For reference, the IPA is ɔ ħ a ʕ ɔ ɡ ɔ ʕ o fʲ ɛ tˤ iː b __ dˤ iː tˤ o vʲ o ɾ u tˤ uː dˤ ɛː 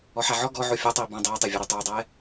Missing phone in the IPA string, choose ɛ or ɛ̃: ɛ̃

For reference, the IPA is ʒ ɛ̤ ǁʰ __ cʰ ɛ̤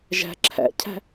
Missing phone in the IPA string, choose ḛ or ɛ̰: ɛ̰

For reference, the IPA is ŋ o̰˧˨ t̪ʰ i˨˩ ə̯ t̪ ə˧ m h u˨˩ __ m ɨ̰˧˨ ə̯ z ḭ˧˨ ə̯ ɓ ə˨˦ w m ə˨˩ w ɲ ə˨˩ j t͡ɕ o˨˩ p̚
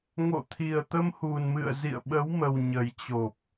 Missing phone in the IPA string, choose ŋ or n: n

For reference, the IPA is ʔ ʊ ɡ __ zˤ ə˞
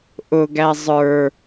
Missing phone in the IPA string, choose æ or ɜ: æ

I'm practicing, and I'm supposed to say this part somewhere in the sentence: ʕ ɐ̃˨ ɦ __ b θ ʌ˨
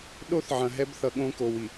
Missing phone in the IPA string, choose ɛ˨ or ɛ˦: ɛ˦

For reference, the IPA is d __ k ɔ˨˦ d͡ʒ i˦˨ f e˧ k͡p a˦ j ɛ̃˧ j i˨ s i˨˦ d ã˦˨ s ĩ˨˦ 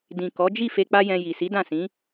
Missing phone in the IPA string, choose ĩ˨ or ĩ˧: ĩ˨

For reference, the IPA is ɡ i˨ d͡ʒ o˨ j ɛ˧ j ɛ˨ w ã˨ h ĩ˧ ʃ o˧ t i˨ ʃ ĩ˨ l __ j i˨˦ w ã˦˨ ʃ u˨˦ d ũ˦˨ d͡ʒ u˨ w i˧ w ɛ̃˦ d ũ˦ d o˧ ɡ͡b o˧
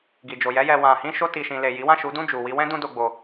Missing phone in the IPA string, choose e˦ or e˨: e˨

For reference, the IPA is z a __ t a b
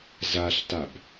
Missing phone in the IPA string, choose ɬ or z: ɬ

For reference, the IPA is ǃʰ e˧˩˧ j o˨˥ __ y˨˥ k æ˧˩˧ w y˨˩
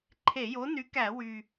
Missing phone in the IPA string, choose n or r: n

